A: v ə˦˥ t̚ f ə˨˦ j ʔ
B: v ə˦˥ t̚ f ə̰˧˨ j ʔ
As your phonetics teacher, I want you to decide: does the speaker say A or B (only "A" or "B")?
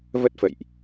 B